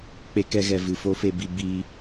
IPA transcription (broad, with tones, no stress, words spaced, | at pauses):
k͡pe˧kɛ˧ɣɛ˨ vɨ˨fo˦fe˧bi˧ biː˧